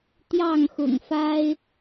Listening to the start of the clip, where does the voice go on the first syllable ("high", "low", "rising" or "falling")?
falling